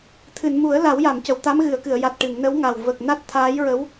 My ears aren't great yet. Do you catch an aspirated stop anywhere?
yes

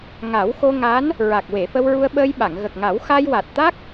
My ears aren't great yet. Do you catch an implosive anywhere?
yes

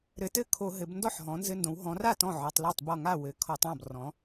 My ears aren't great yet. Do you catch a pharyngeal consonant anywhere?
yes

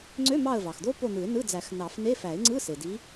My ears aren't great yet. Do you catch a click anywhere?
yes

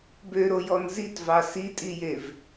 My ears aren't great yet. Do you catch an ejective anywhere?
yes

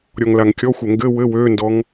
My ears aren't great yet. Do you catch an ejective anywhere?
no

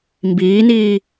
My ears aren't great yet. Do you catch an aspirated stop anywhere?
no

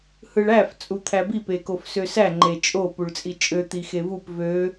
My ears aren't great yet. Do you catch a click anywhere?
yes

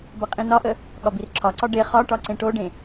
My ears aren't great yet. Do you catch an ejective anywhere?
yes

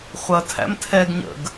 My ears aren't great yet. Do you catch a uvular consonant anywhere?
yes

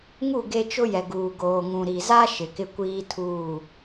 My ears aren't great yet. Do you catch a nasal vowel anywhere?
yes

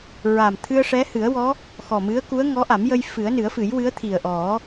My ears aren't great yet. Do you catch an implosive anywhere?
no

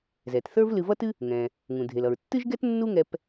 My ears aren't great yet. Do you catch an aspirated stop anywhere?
no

